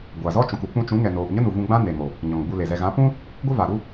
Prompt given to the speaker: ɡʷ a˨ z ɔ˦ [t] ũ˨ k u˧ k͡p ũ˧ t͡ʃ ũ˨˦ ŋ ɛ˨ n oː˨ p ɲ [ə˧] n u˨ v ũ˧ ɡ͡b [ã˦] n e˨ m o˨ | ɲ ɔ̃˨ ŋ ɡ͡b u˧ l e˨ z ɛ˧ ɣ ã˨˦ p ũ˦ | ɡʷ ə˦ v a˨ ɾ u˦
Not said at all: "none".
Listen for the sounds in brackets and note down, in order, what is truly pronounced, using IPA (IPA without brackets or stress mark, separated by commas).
t͡ʃ, ə˦, ã˦